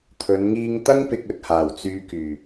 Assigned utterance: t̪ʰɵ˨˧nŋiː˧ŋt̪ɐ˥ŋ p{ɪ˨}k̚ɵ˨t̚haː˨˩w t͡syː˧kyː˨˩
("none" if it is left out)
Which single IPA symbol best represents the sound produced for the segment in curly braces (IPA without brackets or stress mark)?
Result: ɪ˧